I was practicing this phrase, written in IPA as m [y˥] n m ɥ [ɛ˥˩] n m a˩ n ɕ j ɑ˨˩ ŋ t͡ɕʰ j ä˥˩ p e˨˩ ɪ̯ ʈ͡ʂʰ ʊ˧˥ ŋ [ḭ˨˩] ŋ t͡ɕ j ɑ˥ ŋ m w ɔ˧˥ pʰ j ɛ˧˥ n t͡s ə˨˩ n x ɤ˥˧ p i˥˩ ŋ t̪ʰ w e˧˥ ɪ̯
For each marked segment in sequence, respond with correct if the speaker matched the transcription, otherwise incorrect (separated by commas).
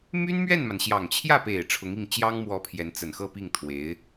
correct, correct, incorrect